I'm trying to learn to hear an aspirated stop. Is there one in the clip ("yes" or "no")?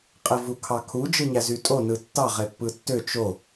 yes